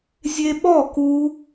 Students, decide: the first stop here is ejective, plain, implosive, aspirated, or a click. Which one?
implosive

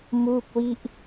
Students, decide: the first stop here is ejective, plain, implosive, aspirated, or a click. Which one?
plain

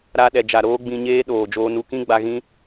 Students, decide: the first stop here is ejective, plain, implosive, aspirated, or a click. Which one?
implosive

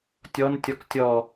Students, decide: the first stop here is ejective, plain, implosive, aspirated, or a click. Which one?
plain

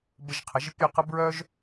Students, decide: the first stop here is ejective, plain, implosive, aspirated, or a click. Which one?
plain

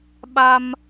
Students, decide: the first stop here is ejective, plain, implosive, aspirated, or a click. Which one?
implosive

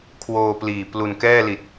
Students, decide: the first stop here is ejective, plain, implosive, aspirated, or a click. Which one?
aspirated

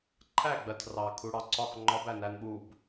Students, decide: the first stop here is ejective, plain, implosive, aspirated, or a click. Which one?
click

